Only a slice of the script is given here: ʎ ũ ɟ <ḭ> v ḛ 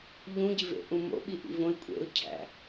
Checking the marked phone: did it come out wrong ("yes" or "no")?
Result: yes